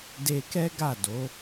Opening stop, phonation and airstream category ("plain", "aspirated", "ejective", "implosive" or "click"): plain